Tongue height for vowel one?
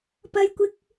low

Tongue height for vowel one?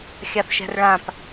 low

